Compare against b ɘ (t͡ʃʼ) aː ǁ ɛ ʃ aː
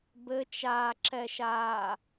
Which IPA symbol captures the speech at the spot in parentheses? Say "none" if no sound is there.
t͡ʃ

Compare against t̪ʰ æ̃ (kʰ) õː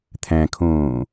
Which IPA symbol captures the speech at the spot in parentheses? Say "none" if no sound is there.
kʰ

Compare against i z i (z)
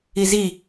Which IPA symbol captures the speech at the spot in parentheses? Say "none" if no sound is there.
none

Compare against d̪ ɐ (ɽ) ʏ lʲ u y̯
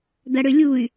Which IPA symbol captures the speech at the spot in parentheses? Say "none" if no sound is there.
ɽ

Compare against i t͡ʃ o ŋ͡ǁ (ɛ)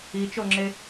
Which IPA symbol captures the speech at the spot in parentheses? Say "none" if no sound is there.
e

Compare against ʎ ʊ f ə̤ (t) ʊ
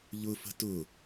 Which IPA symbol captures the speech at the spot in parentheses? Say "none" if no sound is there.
t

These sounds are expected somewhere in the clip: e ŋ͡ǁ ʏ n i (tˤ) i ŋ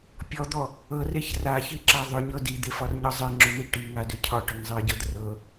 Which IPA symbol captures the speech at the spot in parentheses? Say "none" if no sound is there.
ʈ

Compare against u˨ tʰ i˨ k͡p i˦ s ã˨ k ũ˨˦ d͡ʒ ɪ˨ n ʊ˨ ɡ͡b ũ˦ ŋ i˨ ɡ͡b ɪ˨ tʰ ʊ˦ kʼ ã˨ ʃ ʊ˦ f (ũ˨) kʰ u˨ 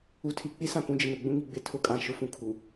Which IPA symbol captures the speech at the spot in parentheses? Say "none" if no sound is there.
ũ˨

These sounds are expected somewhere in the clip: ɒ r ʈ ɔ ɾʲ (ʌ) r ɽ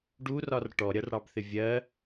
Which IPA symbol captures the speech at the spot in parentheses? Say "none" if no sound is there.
ʌ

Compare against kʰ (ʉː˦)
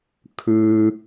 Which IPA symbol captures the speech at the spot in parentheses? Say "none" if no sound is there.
ʉː˦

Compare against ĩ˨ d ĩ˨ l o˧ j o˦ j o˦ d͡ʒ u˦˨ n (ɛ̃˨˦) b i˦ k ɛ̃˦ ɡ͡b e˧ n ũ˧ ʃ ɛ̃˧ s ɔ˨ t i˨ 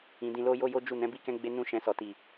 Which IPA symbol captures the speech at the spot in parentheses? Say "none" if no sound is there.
ɛ̃˨˦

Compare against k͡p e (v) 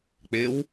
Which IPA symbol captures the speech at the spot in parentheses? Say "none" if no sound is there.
w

